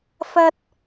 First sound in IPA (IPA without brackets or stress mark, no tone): f